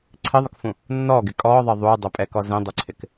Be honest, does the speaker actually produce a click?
yes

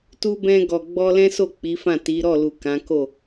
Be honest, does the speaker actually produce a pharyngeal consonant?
no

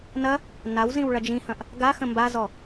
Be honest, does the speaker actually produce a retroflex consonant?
yes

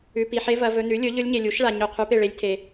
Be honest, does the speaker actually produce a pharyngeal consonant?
yes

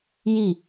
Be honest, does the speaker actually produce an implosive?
no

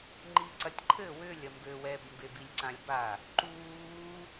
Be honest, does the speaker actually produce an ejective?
no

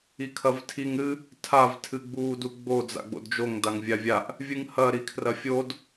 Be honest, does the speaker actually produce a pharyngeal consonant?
no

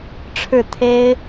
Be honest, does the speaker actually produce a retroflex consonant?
yes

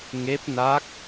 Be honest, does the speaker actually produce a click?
no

